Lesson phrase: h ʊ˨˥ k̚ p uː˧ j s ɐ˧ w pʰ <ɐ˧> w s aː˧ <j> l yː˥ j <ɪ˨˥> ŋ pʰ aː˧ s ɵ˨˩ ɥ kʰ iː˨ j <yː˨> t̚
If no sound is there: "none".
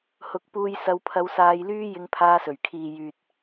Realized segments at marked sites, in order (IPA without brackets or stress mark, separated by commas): ɐ˧, j, ɪ˧, yː˨